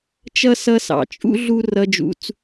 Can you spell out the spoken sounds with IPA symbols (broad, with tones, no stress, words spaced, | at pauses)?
t͡ʃʌ˥sʌ˦sɑ̰˩t͡ʃʼṵ˥ ɮu˥ rʌ˦d͡ʒṵ˦t͡s